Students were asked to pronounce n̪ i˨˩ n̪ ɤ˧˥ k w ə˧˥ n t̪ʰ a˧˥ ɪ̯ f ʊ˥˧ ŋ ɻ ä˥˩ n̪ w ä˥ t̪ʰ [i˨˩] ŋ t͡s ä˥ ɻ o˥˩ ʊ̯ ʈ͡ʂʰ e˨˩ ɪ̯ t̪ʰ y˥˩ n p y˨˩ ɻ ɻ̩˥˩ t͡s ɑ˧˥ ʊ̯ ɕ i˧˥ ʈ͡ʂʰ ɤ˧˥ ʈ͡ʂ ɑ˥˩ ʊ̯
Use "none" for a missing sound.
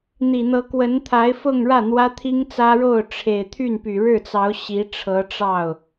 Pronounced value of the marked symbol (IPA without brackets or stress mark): i˥